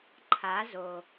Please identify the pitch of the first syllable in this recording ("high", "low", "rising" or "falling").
rising